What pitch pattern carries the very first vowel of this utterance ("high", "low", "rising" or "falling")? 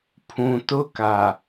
low